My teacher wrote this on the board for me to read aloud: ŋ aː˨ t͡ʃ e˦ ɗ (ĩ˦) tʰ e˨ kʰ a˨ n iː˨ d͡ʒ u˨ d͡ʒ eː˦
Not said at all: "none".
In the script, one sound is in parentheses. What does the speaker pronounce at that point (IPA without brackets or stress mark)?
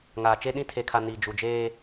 ĩ˦